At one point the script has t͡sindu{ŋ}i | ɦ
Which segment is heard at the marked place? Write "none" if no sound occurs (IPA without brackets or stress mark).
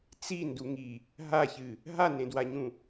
ŋ